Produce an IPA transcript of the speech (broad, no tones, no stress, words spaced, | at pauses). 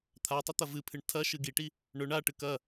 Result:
t̪ʰatˤʉ t̪ɐvɨpʰɨɳ tʰɐ ʃɨɡiʈi | ɳɵɳ aʈɨk ɐ